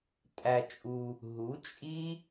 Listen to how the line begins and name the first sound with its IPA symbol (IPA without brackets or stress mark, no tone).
tʼ